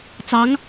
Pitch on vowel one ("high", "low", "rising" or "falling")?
rising